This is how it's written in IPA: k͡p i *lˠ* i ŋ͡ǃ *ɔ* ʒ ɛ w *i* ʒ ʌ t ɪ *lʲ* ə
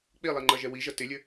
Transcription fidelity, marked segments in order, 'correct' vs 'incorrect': correct, incorrect: ʌ, correct, correct

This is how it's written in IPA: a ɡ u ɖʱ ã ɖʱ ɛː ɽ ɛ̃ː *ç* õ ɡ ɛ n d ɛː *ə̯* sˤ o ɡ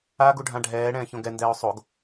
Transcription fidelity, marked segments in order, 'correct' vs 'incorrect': correct, incorrect: ʊ̯

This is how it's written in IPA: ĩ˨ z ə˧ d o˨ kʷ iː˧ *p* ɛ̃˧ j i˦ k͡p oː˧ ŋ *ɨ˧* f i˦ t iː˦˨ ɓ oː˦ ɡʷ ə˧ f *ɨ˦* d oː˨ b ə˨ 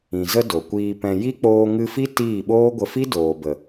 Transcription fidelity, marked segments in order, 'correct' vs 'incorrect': correct, correct, incorrect: i˦

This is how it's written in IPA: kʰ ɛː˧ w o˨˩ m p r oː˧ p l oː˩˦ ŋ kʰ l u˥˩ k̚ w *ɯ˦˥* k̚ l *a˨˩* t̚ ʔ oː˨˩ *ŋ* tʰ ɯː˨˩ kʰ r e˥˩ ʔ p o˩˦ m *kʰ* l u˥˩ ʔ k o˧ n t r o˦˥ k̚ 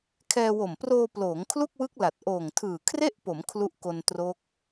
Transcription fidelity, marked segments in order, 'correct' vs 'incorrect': correct, correct, correct, correct

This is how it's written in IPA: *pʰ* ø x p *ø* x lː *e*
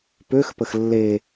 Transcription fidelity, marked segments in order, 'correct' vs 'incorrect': incorrect: p, incorrect: ə, correct

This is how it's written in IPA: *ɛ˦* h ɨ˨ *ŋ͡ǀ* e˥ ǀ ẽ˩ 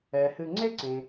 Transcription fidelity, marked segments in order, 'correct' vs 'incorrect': incorrect: ɛ˩, correct

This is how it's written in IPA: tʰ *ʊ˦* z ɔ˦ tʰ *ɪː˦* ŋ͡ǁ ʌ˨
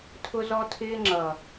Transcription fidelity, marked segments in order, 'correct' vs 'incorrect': correct, correct

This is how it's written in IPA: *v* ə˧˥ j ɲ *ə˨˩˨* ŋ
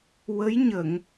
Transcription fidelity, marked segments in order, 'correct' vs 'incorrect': incorrect: w, correct

